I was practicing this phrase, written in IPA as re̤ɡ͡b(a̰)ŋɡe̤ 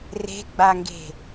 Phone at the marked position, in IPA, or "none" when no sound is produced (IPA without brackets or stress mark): a